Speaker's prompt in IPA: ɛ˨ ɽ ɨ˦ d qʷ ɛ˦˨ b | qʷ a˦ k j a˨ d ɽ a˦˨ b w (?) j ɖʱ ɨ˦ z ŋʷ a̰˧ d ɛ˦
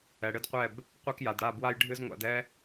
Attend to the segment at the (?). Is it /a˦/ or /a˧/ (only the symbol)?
a˦